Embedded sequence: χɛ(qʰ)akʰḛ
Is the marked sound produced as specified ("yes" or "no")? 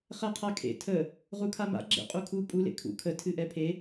yes